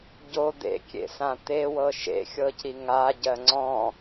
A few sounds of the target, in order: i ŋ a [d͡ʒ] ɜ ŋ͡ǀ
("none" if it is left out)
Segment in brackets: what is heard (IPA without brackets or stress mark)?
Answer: ɟ